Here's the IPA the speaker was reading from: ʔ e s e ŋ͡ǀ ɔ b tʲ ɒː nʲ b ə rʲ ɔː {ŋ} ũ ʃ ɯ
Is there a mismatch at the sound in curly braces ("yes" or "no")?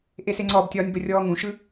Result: no